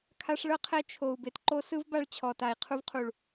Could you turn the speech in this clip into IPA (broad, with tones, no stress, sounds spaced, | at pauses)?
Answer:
kʰ a˧ ʂ ɭ ɤ˧ qʰ ɛ˧ t͡ʃʰ o˨ u̯ b e˨ t ǃ o˧ s ɯ˦ v b a˦ ɭ t͡ɕʰ ɔ˨ t a˨ i̯ qʰ u˧ v qʰ u˨ ɭ